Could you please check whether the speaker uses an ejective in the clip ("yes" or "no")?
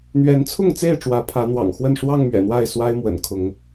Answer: no